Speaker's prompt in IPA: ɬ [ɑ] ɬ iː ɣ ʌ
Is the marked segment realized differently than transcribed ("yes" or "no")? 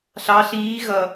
no